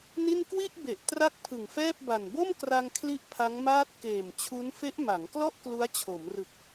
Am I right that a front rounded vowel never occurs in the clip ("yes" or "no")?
yes